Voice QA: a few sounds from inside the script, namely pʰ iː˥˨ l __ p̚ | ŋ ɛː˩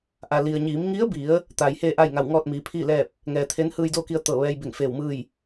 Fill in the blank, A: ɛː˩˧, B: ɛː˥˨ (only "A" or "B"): B